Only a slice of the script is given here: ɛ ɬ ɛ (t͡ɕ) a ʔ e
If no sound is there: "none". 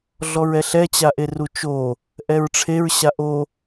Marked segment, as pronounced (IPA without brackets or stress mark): t͡ɕ